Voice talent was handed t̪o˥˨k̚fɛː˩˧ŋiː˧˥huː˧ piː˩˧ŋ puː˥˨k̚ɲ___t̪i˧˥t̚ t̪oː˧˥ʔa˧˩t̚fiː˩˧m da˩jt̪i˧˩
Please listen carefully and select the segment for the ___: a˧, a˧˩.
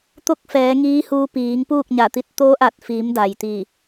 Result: a˧˩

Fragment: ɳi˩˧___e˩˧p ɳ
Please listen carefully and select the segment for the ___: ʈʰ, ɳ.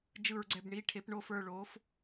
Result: ʈʰ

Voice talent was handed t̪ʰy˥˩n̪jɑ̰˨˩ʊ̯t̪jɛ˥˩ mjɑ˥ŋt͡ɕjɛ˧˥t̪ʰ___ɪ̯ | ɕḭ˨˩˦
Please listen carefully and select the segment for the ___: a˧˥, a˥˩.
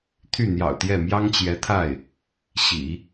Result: a˥˩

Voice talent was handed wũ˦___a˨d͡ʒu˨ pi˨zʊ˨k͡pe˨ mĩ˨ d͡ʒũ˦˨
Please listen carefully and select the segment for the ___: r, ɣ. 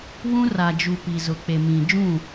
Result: r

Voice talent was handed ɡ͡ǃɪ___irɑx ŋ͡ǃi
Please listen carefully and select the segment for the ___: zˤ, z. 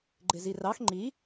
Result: z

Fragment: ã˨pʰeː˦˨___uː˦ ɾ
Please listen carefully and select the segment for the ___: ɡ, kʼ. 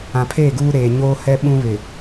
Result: ɡ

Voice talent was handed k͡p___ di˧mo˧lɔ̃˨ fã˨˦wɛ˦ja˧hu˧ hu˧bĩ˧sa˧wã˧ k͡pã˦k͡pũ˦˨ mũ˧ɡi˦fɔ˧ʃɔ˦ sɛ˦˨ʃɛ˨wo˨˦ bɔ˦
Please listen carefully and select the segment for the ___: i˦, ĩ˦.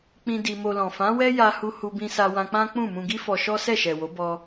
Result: ĩ˦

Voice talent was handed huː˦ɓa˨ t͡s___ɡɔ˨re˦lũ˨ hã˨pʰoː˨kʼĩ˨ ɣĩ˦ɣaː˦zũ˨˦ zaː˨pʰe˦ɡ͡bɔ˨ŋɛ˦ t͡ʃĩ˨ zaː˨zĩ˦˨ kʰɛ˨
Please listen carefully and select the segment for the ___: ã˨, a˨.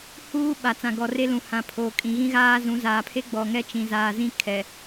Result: ã˨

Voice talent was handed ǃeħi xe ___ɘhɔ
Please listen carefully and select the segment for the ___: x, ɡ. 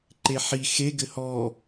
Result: ɡ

